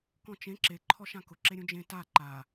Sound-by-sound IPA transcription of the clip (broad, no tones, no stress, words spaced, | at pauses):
kɔ̃t͡ʃẽ ǁe ǃʰɔʃãkʊ ǁeɾʲũd͡ʒẽ ta ǃa